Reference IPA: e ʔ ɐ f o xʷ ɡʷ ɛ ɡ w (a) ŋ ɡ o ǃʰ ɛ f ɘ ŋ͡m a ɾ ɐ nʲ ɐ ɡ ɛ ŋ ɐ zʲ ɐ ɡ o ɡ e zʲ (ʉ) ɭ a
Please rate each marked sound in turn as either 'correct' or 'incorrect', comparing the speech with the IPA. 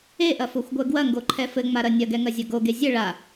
incorrect: ɐ, incorrect: ɘ

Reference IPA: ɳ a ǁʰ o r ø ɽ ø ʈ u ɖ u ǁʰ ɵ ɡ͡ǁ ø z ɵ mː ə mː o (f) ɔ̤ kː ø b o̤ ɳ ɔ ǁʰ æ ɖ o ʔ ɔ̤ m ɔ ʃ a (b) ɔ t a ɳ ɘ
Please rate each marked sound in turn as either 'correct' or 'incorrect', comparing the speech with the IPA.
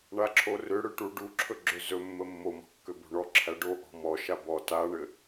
incorrect: m, correct

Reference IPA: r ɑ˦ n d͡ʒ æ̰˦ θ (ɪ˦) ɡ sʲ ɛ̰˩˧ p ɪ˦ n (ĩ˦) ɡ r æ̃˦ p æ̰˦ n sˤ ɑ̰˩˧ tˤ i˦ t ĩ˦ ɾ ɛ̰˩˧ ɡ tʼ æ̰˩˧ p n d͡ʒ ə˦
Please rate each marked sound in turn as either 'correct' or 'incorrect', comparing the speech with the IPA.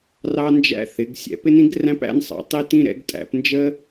incorrect: ɪ˩˧, correct

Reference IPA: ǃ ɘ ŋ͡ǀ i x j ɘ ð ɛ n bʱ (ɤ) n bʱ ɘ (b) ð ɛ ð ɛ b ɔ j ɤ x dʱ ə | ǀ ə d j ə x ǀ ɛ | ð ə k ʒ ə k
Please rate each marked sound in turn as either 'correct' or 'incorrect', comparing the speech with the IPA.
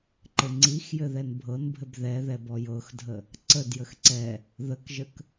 correct, correct

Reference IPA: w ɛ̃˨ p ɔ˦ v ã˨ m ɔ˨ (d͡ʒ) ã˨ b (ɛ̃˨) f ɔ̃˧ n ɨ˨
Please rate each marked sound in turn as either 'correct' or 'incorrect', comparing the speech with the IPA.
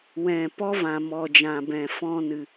correct, correct

